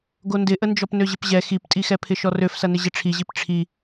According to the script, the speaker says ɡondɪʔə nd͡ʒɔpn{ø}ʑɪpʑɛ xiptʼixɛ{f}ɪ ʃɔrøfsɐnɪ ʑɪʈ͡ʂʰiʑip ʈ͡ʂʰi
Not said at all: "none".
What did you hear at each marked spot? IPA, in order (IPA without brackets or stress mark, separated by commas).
ø, pʰ